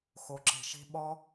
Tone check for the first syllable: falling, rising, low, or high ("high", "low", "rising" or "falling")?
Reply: low